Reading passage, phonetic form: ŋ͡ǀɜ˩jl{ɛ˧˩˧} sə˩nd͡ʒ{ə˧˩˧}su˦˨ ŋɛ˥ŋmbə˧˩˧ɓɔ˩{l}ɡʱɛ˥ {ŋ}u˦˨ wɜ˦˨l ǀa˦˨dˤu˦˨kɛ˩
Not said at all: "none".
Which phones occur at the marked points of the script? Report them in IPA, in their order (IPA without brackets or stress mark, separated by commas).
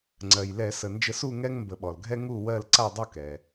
ɛ˧˩˧, ə˧˩˧, l, ŋ